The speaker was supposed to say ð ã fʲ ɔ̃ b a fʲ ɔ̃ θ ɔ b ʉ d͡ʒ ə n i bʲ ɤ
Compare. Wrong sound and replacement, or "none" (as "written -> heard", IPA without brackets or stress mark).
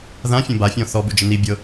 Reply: none